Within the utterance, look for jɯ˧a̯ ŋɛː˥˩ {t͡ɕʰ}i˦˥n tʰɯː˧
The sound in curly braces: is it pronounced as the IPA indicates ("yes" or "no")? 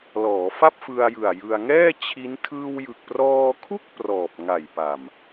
yes